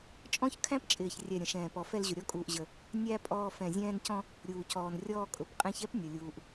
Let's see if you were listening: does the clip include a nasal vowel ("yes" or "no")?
yes